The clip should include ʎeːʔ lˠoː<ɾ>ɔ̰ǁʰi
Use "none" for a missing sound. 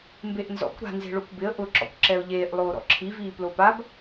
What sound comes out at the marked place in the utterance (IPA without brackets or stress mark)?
ɾ